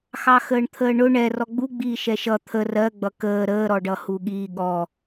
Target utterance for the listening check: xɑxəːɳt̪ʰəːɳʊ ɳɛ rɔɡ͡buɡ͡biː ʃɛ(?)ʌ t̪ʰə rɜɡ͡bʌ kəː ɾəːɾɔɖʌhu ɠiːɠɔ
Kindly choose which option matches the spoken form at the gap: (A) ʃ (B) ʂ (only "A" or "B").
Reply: A